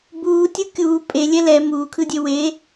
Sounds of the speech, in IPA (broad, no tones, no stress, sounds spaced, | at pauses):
b uː tʲ ɯ kʲ uː pʼ e lʲ ɛ l ɛ m uː kʰ ɯ dʲ e w e